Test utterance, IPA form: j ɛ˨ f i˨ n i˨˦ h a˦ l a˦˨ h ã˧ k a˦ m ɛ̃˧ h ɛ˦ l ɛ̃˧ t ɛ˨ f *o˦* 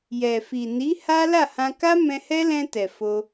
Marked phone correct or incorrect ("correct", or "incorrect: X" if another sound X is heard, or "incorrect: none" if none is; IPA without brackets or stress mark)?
incorrect: o˧